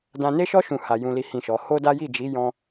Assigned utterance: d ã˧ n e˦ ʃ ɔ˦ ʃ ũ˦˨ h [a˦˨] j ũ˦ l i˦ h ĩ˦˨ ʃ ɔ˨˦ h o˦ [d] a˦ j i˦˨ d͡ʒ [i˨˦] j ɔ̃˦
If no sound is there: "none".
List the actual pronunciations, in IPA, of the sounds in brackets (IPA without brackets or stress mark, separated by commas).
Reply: a˧, d, i˨˦